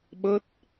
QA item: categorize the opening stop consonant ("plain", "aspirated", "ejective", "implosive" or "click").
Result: implosive